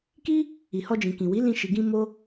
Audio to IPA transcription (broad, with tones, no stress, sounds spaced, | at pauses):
k i˦ | i˨ h ɔ˧ d͡ʒ ĩ˨ k ĩ˨ w i˨˦ l ĩ˧ ʃ i˨ ɡ ĩ˧ m o˦